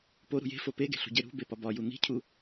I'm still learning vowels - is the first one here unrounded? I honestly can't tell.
no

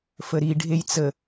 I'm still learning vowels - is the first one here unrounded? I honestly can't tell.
yes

